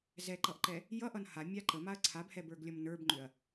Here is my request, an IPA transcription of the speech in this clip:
zɛǃʌʔǃɛ | jʌʔʌn hamʲa ǃəmaɐ̯ ǀʰabhɛbə˞ɡlʲʌm nə˞bŋ͡ǃʏɐ̯

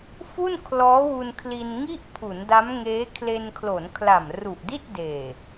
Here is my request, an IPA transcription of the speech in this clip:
fu˥˩nkʰlɔː˦˥wu˧nkʰli˧n ŋi˥˩ʔpʰu˩˦nda˦˥m ŋeː˦˥ kʰle˧nkʰlo˩˦nkʰla˨˩m ru˨˩ʔdi˥˩t̚deː˨˩

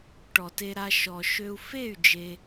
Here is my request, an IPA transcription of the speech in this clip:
ʈɔ˨te˧ɾa˧ ʃɔ˨ʃø˧u̯ fe˦˨y̯ d͡ʒe˧

